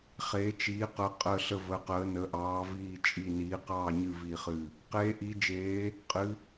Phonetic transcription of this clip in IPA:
χ eː˩˧ t͡ʃ iː˩˧ q ə˩˧ qʼ ə˧˩ ɬ ə˧˩ v ə˩˧ q əː˩˧ n ə˩˧ ʔ ɑː˩˧ v iː˧˩ t͡ʃʼ i˧˩ n iː˩˧ q ɑː˧˩ ɲ ɨ˧˩ v i˧˩ χ ɨ˧˩ | q eː˩˧ ʔ i˩˧ d͡ʒ eː˩˧ | qʼ ɨ˩˧

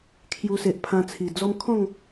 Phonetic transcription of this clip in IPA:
kʰ j u˧ s e˨ ʔ pʰ ã˧ t͡sʰ i˨˩ d͡z ɔ˦ m kʰ ɔ̃˥˧ ŋ

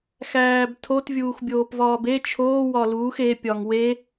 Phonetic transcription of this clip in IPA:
x æː b tʰ o t vʲ uː x bʲ oː p v ɒː b e t͡ʃʰ oː w ɒ l uː x e pʲ ɒ ŋ w e

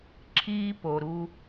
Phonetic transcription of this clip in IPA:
ǁʰ iː˦ p o˨ ɾ u˦

